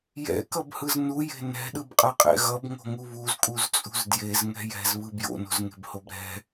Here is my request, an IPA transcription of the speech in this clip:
jɛ̰kʌbhɯz nuje̤ nɛ̤ɗɯbqʼʌqʼɛ̰ ɣʌbŋo̤ŋu βuzkʼuzt͡sʼṳz djezŋɛ̤ jɛ̤zβɯ bjo̰no̤zŋe̤bhob ɾɛ̤

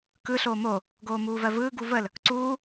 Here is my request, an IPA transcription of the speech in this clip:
kɯ ɬoːmo | ɡoːmuːvɜvɯː ɡuvəl | ǀuː

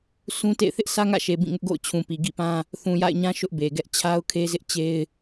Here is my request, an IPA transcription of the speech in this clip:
sũ˦tḛ˦˨ɪ̯ θɪ˦ʔsʰä˦ŋä̰˦˨ʃe˨ bĩ˦˨ŋʊ˦ʔ ɡo̰˦˨ʊ̯t͡ɕʰũ˨pi˨ ɡḭ˦˨pã˦ | θũ˨ja̰˦˨ɪ̯ɲã˦ ʃʊ˦ʔbe˨ɡɛ˦ʔ t͡ɕʰa˦ʊ̯kʰe˦zɪ˦ʔ t͡ɕe˦ɪ̯

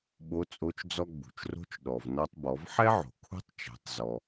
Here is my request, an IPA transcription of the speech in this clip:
ɓo˧˥t͡sʼo˧˥t͡ʃ d͡zɔ˧ɡ͡bṳ˩t͡ʃro̤˧˥t͡ʃ ɗɔ˩v nɔ˧tˤbɔ˩˧vħɛ˥ ʕo̤˩kʰṳ˥tˤt͡ʃɛ̤˩˧tˤzɔ˩

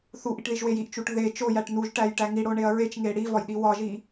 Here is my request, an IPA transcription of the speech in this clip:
θuʔiʈðiʒwej iʔt͡ʃuʈ ðe t͡ʃojæʈ nuʒʈæjʈæ ŋiɽoɳeɐ̯ ɹet͡ʃŋe ɽivɒjɗi wɒʒi

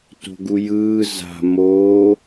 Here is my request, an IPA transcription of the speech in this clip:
to̤ɡujɯː za̤ moː

